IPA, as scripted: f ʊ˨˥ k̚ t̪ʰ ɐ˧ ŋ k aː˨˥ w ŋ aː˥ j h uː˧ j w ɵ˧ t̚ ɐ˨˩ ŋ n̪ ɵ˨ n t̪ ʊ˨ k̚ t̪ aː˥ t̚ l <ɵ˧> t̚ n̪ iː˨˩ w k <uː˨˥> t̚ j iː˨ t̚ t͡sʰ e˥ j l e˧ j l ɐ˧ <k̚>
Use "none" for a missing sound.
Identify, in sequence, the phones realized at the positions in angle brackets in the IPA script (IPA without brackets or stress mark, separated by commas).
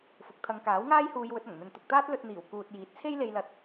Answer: ɵ˧, uː˨, t̚